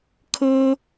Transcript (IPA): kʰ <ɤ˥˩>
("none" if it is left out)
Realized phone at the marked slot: ɤ˥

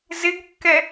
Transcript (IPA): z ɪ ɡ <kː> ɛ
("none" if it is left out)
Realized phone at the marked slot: kː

